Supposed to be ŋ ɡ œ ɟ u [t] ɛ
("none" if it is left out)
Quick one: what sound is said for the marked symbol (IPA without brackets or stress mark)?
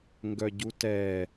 t